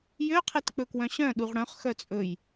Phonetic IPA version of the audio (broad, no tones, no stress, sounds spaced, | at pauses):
j ø qʰ e t k͡p ɵ k w œ̃ ɕ œ̃ ɗ u ʁ ɽ œ̃ χ x œ t͡sʼ ɵ j